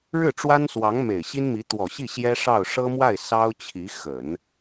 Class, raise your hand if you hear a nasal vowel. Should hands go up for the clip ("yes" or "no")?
no